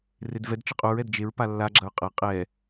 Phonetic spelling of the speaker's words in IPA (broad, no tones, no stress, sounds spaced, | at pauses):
r e d v ɛ d t͡ʃ ɨ qʼ u ɹ ɛ d d͡ʒ e ɹ p a lː a ɡ͡ǁ ɐ ɹ qʼ ɐ qʼ ɛ